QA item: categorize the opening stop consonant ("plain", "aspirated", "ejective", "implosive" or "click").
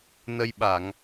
implosive